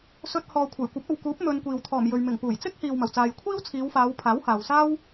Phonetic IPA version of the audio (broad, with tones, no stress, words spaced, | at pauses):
sɵ˧t̚hɔː˨ kʷʰɐ˨˩jkʷɐ˨˥p̚ɐ˨wkuː˨˥p̚ mɵ˧nkʷiː˨w t̪ʰɔː˨˩mjɵ˨ɥ mɪ˨˩ŋpuː˨˩jt͡sɪ˥k̚hiː˨w mɐ˨˩wt͡saː˨jkʷʰiː˥w t͡sʰiː˨˧wfaː˨˧w pʰaː˨˥whaː˨wsaː˥w